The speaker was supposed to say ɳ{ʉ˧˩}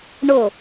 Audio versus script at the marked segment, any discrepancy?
yes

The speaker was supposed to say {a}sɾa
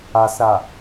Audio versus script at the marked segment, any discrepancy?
no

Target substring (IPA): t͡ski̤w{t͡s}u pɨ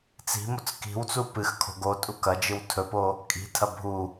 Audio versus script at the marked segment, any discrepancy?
no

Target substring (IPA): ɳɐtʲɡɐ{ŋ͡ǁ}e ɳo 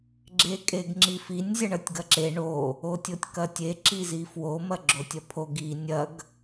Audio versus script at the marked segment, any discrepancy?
yes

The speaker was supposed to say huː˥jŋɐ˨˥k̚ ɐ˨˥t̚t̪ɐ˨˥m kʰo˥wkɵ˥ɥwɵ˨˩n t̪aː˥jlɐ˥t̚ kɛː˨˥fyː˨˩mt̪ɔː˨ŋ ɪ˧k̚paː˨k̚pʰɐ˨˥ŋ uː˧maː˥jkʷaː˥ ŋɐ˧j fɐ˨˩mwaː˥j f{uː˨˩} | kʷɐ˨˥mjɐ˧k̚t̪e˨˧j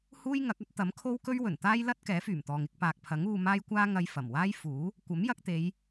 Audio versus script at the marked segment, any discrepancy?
yes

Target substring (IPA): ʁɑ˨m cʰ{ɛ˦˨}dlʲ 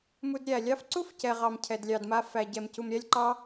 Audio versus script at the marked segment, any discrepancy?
yes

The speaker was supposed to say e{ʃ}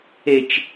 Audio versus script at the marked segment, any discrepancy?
yes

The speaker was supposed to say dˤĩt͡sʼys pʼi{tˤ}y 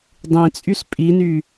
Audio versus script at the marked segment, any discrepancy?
yes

